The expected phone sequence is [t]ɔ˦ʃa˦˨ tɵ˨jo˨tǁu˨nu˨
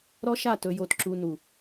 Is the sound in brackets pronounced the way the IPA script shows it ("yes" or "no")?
no